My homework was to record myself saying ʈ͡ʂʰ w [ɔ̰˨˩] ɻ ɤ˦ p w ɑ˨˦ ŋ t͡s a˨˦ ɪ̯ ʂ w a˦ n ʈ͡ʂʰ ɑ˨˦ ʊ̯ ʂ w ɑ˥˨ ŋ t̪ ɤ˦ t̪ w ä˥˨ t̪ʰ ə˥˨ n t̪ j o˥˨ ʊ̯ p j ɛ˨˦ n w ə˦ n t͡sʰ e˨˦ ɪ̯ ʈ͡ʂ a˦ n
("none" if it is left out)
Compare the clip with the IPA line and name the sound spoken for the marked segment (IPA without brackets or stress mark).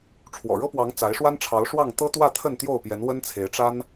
ɔ̰˨˩